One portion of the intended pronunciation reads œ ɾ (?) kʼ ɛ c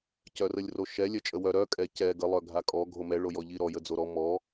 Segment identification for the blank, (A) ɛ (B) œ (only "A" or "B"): B